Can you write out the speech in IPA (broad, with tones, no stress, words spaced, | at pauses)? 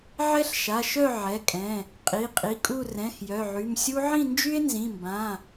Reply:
ʕɛ˥ɬʃa˩˧˩ʃœ˥˧ ʕɛ˩˧˩kʼɛ̃˩˧˩ | qʼi˩˧˩qʼi˩˧˩kʼu˥˧ rɛ̃˩˧˩x jœ˩˧˩ʕy˩˧˩m sʲu˥ ʕĩ˥˧nd͡ʒy˥e̯nzĩ˩˧˩mbã˩˧˩